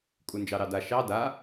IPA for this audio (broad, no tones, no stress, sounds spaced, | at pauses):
kʼ u n d͡ʒ ɑ ɾ ɑ d a ʃ ɑ d a